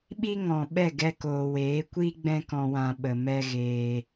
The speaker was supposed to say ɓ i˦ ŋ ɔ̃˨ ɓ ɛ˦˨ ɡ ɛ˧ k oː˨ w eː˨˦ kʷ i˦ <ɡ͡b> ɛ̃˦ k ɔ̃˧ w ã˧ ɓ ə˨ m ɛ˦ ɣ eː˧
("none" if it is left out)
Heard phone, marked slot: ɡ͡b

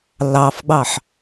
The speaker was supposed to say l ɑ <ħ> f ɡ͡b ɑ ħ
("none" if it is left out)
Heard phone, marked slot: none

